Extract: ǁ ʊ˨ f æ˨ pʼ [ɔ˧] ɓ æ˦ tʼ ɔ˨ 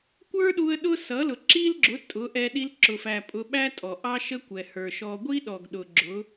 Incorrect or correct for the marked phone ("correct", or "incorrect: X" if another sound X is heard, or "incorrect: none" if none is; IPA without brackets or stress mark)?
incorrect: ʊ˧